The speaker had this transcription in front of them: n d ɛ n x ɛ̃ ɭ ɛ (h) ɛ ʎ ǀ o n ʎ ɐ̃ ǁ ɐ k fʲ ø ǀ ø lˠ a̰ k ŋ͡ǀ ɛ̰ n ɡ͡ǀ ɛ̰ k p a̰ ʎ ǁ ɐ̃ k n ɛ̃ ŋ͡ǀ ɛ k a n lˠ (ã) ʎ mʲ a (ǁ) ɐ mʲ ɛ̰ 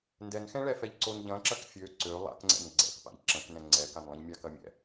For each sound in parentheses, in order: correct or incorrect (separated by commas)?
incorrect, incorrect, incorrect